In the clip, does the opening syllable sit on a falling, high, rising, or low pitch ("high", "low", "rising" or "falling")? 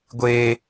high